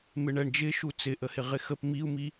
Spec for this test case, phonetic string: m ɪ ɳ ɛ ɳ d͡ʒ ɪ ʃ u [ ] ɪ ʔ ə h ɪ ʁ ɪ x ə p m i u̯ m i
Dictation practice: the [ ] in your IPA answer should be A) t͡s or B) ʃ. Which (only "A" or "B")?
A